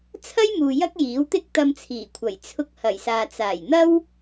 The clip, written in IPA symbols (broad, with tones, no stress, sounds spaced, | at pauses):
t͡sʰ ɐ˥ j m uː˨ j ɐ˥ k̚ j iː˨˥ w t̪ ɪ˥ k̚ t̪ ɐ˧ m t͡sʰ iː˨˩ kʷʰ ɐ˨˩ j t͡sʰ ʊ˧ k̚ h ɐ˨˩ j s aː˨ t͡s aː˨˩ j n̪ ɐ˥ w